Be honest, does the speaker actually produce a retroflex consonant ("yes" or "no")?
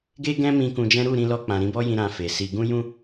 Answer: no